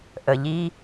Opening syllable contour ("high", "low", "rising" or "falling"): low